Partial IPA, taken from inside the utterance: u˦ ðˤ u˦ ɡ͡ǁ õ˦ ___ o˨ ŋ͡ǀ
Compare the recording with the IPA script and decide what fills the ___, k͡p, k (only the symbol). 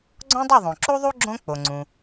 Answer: k͡p